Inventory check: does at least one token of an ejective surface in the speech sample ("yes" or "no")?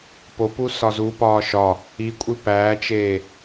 yes